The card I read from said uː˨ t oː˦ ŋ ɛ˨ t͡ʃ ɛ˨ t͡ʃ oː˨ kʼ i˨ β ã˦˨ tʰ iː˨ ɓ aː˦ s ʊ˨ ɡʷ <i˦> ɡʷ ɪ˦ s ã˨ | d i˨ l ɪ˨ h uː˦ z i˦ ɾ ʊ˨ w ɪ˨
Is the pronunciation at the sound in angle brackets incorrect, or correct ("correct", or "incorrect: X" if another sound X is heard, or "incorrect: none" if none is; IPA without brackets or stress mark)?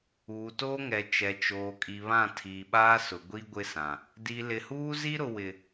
correct